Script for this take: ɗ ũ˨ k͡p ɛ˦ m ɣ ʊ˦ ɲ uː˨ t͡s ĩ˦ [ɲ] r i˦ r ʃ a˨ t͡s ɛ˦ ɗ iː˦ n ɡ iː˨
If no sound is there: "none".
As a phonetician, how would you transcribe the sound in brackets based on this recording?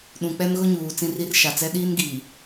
none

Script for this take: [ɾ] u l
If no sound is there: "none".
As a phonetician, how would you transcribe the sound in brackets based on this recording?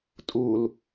tʼ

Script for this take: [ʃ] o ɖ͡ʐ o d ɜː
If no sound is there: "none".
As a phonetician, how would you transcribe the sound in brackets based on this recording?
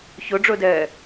ç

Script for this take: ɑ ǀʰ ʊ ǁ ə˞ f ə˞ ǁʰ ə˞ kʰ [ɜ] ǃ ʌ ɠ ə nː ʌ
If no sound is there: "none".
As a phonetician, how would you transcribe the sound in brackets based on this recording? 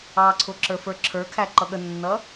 æ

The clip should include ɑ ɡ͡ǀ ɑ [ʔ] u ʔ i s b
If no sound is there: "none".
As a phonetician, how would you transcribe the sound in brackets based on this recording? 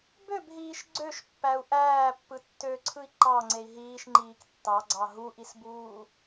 ɦ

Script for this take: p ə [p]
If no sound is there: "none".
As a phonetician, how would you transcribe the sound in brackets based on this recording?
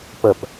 p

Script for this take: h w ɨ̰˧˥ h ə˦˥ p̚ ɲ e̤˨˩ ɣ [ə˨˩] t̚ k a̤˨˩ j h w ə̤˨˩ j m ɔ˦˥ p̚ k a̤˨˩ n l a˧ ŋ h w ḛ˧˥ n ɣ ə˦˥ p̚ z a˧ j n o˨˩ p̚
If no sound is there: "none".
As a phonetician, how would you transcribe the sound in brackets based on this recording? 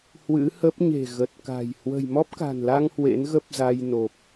ə˨˩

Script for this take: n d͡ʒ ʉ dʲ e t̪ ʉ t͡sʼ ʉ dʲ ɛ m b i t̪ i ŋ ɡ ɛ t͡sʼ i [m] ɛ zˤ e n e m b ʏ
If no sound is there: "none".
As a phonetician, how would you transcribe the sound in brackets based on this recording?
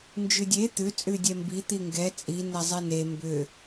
n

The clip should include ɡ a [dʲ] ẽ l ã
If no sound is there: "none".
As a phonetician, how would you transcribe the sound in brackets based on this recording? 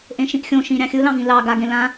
ɡ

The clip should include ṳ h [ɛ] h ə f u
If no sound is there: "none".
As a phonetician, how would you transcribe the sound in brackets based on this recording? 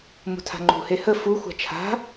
e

